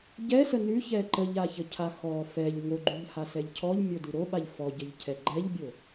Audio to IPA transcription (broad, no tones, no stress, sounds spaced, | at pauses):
ɟ ɛ s ə n ʉ ç ɛ ǃ ə ʎ a ç ə cʰ a x ɔ f ɛ ʎ ŋ o ɡ͡ǃ ʉ ʎ h a s ɛ ʎ cʰ ɔ ʎ mʲ o d ʉ ɾ o ɓ a ʎ f ɔ ɟ ə ʎ cʰ ɛ ɡ͡ǃ ɛ ʎ bʲ o